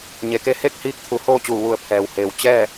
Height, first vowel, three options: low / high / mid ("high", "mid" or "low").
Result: mid